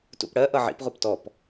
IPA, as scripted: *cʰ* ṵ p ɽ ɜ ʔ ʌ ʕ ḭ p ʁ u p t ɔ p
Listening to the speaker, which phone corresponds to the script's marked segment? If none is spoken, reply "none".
t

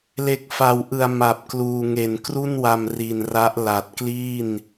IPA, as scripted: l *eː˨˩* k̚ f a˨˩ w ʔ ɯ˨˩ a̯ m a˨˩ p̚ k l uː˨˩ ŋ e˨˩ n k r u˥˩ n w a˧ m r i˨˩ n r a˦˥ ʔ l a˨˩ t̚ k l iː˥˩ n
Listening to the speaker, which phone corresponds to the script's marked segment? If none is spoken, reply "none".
e˨˩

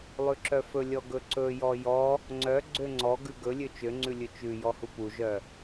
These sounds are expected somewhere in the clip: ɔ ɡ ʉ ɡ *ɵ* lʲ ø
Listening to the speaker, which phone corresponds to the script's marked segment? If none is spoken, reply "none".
ɵ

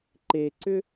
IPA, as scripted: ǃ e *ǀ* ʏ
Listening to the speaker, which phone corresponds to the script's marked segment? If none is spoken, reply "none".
ǀ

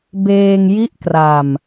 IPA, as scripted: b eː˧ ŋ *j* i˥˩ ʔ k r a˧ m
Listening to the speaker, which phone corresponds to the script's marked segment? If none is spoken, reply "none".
j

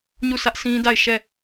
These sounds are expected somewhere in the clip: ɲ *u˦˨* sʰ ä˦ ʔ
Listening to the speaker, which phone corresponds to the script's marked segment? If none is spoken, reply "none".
u˦˨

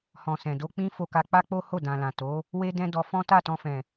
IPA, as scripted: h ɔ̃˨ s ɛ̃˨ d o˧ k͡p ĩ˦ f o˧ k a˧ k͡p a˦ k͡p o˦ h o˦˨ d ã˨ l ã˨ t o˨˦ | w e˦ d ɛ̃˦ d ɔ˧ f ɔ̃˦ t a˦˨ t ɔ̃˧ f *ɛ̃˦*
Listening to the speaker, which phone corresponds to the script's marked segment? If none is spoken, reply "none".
ɛ̃˨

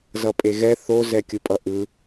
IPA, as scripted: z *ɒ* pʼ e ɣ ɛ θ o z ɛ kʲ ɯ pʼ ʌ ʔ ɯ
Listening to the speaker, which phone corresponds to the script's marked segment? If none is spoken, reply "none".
ʌ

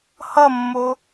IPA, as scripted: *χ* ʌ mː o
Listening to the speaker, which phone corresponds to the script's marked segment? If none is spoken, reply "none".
h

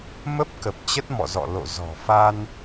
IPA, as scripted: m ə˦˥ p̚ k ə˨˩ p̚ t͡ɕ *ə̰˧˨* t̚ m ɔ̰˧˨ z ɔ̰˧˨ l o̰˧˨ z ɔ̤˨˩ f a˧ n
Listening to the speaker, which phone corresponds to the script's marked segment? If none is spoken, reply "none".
ə˦˥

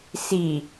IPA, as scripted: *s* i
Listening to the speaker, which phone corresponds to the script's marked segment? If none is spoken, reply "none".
s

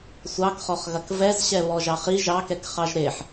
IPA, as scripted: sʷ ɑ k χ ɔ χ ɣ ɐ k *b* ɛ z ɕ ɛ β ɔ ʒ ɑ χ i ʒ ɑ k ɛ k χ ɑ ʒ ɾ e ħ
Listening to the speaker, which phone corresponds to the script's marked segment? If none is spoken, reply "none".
v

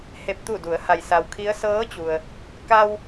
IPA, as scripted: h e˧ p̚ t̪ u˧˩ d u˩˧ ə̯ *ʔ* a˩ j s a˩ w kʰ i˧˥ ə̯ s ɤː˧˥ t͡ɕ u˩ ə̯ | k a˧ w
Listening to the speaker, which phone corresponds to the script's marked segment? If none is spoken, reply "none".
h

